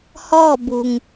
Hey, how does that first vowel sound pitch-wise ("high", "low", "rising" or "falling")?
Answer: falling